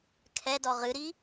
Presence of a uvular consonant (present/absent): present